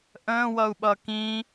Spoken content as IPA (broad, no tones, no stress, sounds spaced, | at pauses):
ʔ ə̃ː w ʌ u̯ ɓ ʌ k ĩ